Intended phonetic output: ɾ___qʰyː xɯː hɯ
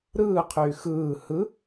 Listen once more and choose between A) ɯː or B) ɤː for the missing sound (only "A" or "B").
A